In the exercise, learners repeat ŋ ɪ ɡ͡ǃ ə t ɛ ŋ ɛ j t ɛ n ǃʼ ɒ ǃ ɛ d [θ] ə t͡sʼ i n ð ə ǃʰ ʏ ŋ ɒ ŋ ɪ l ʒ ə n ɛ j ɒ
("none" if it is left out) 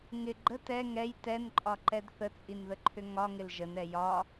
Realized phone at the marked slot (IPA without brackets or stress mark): θ